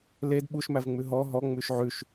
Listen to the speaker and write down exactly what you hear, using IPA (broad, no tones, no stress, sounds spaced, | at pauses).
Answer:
l e d ɓ u ʃ m æ v ŋ͡m ʉ ɦ ɔ ɦ ɔ ŋ͡m ʉ ʃ ʕ ʉ ʃ